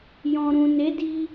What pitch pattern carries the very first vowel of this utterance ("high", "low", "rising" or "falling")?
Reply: low